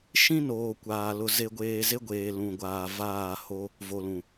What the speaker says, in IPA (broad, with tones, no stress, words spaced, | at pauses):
ʃĩ˦ noː˨kʷaː˨ lʊ˨ ze˨ɡʷeː˨ ze˦ɡʷeː˨ lũ˨ɡʷaː˨vaː˦˨ho˦ | vo˨lũ˨